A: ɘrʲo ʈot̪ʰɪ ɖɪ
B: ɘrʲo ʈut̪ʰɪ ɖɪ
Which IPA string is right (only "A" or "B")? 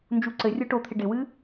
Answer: A